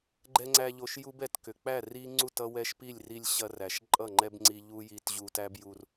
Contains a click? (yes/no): yes